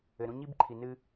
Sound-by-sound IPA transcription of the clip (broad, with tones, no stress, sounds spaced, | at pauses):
ɘ˨ ɾ ũ˦ ɲ i˥ b ǃʰ i˨ n ɨː˥